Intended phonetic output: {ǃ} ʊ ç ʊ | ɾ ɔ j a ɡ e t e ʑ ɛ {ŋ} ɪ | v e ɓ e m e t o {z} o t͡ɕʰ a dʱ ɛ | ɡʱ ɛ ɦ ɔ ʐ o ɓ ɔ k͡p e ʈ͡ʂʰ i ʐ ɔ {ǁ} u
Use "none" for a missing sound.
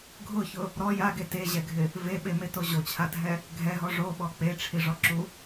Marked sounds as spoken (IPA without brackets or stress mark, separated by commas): ɡʱ, ɡʱ, ʑ, ǁ